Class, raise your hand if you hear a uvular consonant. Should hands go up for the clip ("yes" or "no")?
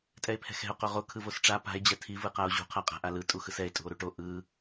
yes